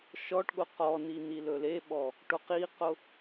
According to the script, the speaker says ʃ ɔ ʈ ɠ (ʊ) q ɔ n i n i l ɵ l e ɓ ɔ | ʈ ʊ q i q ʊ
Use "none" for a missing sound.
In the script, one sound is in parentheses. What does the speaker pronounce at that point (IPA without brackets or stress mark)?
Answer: ʊ